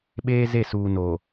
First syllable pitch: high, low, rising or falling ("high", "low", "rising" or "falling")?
high